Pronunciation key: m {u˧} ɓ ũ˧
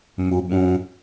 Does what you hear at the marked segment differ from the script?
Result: no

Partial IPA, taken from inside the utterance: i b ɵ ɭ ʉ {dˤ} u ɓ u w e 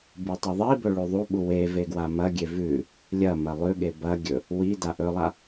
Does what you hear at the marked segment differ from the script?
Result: yes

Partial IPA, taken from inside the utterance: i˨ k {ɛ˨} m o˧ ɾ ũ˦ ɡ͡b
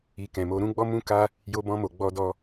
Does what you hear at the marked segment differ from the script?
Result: yes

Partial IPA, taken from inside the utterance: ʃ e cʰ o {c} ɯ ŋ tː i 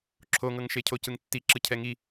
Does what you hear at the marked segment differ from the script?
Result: no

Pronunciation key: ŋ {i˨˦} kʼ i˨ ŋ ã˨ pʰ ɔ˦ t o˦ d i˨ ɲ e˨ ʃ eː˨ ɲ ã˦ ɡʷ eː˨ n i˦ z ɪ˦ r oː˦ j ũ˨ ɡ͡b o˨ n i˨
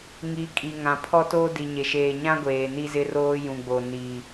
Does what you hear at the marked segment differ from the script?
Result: no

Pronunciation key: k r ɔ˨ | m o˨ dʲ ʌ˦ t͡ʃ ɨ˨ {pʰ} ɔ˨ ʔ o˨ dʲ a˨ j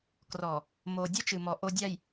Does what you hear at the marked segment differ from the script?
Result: yes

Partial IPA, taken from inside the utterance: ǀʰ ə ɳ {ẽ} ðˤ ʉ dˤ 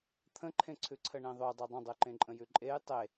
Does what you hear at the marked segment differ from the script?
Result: no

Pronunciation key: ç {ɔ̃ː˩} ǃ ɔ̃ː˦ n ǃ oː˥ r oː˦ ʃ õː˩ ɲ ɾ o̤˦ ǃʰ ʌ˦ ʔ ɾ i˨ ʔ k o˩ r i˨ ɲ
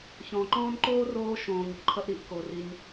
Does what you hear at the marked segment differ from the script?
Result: no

